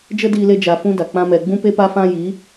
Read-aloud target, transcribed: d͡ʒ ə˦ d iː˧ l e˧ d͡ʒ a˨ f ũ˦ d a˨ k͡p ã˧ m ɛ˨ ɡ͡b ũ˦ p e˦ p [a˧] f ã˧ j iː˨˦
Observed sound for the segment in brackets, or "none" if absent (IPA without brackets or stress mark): a˧